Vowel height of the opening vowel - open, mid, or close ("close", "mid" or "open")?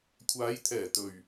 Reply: open